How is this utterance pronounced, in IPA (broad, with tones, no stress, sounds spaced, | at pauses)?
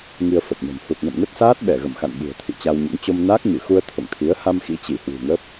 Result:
ŋ i˧ ə̯ f ə˨˩ p̚ n ə̤˨˩ m h u˨˩ t̚ n ə̰˧˨ m n ə˦˥ t̚ s aː˦˥ t̚ ɓ ɛ˧˩ ɣ ə̰˧˨ m x a̰˧˨ n ɓ ṳ˨˩ ə̯ t̪ʰ ḭ˧˨ t͡ɕ a˧ w ɲ ə̰˧˥ n t͡ɕ o˧ m n aː˦˥ k̚ ɲ ɨ˧˩ x u˧ ə̯ t̪ʰ o̰˧˨ ŋ t̪ʰ i˨˦ ə̯ h a˧ m x ḭ˧˥ t͡ɕ i˧˩ h w ṳ˨˩ ŋ ə˦˥ p̚